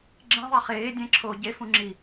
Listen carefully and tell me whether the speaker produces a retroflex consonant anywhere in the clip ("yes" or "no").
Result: no